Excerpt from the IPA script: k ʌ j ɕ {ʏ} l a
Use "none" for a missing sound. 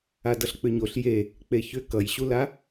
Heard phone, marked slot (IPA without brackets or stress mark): u